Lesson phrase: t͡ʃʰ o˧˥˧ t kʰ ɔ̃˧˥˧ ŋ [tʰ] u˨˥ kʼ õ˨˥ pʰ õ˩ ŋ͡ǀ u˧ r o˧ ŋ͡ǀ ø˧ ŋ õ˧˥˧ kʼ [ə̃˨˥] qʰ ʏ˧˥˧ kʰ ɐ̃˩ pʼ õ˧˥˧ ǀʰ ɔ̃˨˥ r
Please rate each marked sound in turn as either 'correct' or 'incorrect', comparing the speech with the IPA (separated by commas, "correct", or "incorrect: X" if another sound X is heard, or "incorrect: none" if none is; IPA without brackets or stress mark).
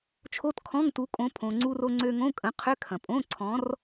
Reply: incorrect: t, correct